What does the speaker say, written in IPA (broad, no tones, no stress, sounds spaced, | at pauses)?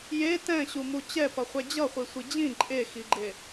j e t ɛ̃ ɕ u m u t͡ɕ ɛ p ʌ χʷ ɛ d͡ʑ ʌ χʷ i sʷ i d͡ʑ ĩ ǃʼ e x i ɡ͡ǃ e